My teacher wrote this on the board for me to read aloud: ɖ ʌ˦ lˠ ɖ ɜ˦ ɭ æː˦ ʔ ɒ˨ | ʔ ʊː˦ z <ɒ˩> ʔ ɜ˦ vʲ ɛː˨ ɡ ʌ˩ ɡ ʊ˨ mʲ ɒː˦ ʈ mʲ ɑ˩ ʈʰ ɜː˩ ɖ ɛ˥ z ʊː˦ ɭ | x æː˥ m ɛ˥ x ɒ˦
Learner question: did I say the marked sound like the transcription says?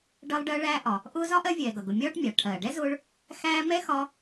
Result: no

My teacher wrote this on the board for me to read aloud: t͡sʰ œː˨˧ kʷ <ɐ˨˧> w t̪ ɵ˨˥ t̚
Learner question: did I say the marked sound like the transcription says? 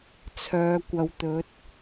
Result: yes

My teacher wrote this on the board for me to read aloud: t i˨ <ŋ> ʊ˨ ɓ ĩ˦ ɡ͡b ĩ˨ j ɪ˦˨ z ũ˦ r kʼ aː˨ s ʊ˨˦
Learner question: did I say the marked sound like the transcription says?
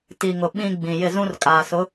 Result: yes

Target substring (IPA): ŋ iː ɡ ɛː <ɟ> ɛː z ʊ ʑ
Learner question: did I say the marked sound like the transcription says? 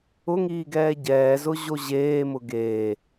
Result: yes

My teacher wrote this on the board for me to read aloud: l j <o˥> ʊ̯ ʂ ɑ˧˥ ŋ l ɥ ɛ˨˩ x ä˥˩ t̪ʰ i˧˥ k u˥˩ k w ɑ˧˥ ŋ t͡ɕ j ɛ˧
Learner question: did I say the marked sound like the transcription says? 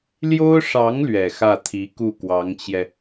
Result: yes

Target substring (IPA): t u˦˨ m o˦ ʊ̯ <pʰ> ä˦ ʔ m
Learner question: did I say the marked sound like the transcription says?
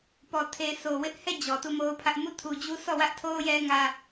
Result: yes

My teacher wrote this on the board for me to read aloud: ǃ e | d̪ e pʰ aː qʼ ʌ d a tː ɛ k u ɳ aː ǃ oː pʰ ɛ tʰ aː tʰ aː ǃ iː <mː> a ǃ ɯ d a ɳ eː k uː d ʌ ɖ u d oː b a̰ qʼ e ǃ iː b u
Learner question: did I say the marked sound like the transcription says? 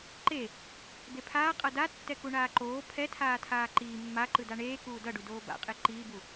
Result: yes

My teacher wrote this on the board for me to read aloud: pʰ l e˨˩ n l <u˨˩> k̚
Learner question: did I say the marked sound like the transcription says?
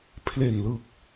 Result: no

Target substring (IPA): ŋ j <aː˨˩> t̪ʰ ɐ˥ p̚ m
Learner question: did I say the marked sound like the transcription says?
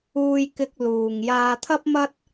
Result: no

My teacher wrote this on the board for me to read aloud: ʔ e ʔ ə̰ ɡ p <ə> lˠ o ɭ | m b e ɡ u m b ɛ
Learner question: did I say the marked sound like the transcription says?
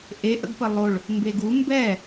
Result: yes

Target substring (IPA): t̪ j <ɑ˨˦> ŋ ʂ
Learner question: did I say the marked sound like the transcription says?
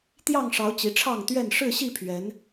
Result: no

